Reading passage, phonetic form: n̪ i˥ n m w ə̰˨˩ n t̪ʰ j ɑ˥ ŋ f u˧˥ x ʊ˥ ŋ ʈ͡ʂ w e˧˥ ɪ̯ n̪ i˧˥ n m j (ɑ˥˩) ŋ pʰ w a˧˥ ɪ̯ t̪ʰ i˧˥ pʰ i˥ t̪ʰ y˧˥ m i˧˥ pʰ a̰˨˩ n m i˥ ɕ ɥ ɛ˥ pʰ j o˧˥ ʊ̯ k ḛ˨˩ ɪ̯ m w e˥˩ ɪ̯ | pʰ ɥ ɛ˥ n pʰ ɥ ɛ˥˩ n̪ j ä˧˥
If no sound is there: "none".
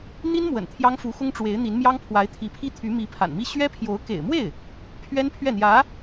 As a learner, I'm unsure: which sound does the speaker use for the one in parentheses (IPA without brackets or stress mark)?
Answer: ɑ˥